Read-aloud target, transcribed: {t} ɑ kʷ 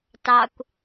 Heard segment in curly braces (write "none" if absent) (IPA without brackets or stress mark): t